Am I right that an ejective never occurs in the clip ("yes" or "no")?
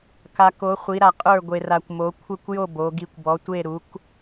no